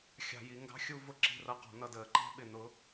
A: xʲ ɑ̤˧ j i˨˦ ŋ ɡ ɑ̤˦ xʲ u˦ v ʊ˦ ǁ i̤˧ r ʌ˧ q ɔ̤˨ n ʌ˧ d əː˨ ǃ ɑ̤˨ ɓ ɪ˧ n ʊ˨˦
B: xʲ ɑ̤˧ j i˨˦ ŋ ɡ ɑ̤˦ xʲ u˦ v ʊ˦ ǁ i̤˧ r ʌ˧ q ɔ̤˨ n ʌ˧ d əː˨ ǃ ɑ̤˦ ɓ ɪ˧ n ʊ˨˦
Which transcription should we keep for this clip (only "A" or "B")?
B